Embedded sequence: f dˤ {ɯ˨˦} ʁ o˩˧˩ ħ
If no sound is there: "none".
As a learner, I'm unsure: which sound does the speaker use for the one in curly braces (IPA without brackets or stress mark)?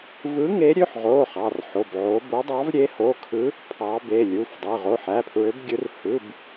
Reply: ɯ˩˧˩